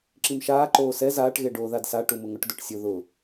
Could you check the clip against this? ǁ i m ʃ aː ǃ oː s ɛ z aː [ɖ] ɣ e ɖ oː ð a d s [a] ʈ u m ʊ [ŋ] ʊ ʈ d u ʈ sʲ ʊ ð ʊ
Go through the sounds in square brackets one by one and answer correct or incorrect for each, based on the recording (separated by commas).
incorrect, correct, correct